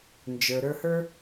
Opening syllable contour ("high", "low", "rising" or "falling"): low